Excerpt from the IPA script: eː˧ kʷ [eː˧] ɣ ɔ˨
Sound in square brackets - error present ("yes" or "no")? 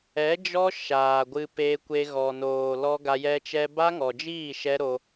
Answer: yes